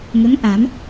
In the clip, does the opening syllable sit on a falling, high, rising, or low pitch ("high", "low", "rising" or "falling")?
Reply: rising